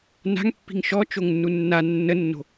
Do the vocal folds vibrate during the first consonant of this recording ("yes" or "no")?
yes